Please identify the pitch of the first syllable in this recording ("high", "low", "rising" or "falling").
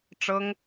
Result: high